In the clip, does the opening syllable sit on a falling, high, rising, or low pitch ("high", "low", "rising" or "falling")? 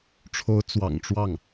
rising